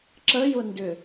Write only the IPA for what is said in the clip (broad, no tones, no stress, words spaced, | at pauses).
ǁəjʊndʏ